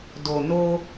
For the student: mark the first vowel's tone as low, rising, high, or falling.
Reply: low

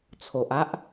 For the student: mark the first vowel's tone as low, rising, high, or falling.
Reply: low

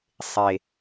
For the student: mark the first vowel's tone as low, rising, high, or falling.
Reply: high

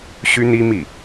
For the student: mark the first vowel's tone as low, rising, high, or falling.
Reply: high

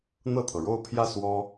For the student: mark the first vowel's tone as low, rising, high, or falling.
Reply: falling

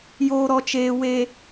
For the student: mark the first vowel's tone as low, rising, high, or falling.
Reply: low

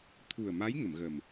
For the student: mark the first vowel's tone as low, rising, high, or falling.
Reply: low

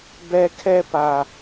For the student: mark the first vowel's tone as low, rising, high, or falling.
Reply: high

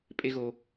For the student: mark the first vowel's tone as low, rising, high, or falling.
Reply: high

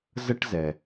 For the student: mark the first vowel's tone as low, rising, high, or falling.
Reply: high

